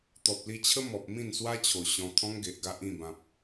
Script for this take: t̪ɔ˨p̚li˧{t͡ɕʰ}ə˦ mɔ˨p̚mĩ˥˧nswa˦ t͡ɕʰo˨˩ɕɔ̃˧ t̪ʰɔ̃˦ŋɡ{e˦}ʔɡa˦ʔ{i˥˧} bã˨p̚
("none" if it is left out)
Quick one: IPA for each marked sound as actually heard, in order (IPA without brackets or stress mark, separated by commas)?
t͡ɕʰ, e˨, ĩ˥˧